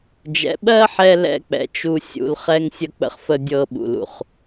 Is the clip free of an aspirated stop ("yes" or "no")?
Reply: yes